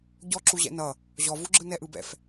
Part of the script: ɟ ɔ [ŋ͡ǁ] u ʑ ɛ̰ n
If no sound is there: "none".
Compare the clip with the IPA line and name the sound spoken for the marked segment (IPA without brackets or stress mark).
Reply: ǁ